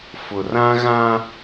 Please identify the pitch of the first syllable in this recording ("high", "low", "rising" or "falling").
low